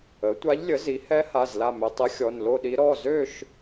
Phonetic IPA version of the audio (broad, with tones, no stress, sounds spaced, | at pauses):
ə˩˥ tʷ a˧˥ ʎ lʲ ə˩˥ z i˩˥ h ɛ˧˥ h a˩˧˩ z l a˥˨ m ø˧ tˤ ə˧˥ xʲ ɔ˩˧˩ n l o˥˨ ɗ i˧˥ ɾ ɔ˩˧˩ z ø˥˨ ʃ